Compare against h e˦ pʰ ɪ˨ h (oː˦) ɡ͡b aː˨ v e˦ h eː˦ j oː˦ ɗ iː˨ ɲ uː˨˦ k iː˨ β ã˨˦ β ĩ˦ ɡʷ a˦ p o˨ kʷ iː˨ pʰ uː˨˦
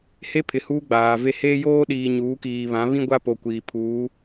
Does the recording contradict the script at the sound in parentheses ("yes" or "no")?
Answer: yes